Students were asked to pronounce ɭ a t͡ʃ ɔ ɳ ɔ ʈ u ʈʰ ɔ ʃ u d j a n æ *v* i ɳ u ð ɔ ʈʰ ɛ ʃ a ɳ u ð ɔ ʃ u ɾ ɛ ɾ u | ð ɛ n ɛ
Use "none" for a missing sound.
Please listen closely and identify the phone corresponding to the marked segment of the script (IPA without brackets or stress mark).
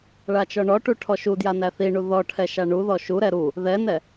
θ